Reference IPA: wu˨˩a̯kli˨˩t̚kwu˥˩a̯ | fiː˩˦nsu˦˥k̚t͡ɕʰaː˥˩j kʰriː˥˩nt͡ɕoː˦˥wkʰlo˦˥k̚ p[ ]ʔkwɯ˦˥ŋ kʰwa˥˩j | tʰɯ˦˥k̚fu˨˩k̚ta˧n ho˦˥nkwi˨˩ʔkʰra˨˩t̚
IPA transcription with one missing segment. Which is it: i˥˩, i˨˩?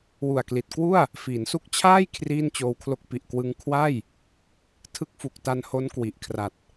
i˨˩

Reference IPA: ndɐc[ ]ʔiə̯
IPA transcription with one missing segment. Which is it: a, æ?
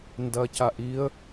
a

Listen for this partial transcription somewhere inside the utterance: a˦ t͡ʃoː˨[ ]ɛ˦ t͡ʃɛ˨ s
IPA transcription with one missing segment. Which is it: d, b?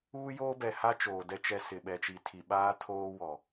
d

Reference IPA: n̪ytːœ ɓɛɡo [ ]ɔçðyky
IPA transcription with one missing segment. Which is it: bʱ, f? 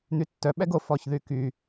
f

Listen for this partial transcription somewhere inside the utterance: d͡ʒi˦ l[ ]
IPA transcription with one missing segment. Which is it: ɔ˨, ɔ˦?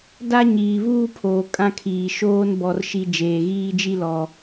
ɔ˨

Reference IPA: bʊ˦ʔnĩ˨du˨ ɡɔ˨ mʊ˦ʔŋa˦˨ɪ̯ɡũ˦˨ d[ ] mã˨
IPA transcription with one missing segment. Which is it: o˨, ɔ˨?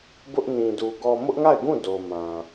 o˨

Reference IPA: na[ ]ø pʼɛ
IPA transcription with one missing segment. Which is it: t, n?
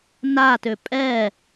t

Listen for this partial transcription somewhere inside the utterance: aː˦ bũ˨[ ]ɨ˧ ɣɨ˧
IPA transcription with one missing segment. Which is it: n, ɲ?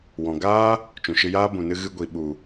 n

